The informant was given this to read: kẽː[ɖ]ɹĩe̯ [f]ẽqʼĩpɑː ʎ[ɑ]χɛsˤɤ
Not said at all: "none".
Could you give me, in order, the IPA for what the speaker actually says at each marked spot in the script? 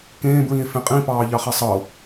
b, f, ɑ

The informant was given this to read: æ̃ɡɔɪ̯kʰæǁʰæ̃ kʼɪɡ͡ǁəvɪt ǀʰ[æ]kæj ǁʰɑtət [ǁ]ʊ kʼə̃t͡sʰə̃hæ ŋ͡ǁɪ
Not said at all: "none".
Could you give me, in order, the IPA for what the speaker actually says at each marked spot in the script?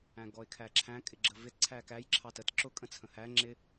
æ, ǁ

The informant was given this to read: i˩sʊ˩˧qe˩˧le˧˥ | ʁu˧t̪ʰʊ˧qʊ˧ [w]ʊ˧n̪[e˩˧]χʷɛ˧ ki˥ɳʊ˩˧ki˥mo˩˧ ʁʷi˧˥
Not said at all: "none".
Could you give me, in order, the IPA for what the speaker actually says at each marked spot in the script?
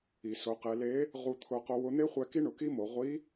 w, e˥

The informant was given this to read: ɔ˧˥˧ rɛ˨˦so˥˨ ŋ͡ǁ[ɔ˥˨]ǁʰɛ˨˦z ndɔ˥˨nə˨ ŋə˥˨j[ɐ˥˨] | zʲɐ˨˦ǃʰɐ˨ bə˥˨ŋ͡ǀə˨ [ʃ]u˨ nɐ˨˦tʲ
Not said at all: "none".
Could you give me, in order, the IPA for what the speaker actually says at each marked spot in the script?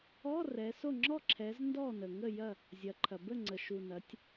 ɔ˥˨, ɐ˥˨, ʃ

